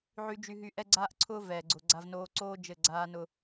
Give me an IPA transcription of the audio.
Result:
ʕ y˧ d͡ʒ y˧ ɦ y˧ ʔ ɛ˦ ɡ͡ǀ aː˦ ʔ ǀʰ ʊː˦ v ɛː˨ ɡ͡ǀ ʊ˨ ɡ͡ǀ a˧ v n oː˧ ǀ oː˦ d͡ʒ ɘ˦˨ ɡ͡ǀ aː˦ n ʊ˦

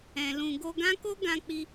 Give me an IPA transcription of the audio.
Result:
ɛ̃˨ l ũ˨ ɡ o˧ ɡ ã˦ k o˦ ɡ ã˧ k͡p i˧

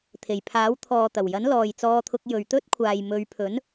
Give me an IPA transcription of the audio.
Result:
t̪ʰ e˨˩ j pʰ aː˨˥ w t̪ʰ ɔː˨ t̪ ɐ˨˩ w j ɐ˨˥ n l ɔː˨ j t͡s ɔː˧ t̪ʰ ʊ˧ k̚ j ɵ˨ ɥ t̪ ɵ˥ t̚ kʷʰ aː˨ j m ɵ˨˧ ɥ pʰ ɵ˨˥ n

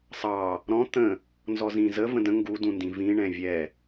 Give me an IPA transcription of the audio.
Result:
sˤ ɑ | ɾ ɔ̃ t̪ ə̃ | n z ɔ z ĩ z ə v ə̃ d ə̃ ŋ ɡ u d ũ n d ĩ v ĩ ɳ ɛ̃ vʲ ɛ

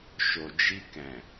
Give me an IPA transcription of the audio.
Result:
ʃ o˨ d͡ʒ i˧ k ɛ̃˨

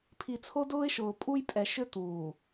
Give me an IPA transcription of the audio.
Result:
pʰ i˨ t͡sʰ o˦ d ʊː˦ ɪ̯ ʃ ʊː˨ pʼ u˦ j pʼ ɛ˨ ʃ ʏ˦ t̪ uː˨

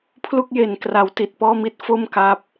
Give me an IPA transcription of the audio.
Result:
pʰ l u˥˩ k̚ j e˩˦ n k r a˩˦ w t i˨˩ t̚ p ɔː˥˩ m i˥˩ t̚ f o˥˩ m k a˦˥ p̚

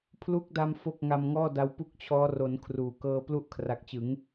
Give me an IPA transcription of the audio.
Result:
pʰ l u˦˥ k̚ d a˧ m f o˥˩ k̚ ŋ a˧ m ŋ ɔː˥˩ d a˧ w p u˥˩ k̚ t͡ɕʰ ɔː˦˥ r o˩˦ n kʰ r uː˩˦ k ɤː˧ p l u˥˩ ʔ kʰ r a˨˩ k̚ t͡ɕ ɯ˩˦ ŋ

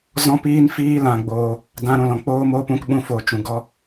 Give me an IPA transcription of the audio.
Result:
z ɔ̃˦ p iː˦ n f iː˦ l ã˧ ɡ͡b oː˧ | d ã˧ ɾ ũ˨ l ɔ̃˨ k͡p oː˦ m oː˦ p ũ˧ k ɓ ũ˧ f o˨ t͡ʃ ũ˨ ɡ ɔ˦

